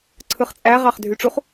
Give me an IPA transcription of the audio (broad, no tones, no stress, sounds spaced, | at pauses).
ǀʰ ɯ χ t͡sʼ æ ʁ ɑ χ dʱ y ʈ͡ʂ u χ